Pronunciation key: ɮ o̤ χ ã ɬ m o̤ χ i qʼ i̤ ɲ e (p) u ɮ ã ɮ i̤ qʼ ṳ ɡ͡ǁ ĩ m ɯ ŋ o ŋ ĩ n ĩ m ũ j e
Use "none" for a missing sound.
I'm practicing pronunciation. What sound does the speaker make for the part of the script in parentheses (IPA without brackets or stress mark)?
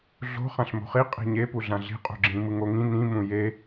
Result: p